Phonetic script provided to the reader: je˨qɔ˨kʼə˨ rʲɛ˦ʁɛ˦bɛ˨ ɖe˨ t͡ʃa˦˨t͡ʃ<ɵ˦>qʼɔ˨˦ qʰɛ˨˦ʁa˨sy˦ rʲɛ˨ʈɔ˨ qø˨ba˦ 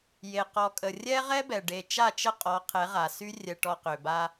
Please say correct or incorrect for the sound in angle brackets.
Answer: incorrect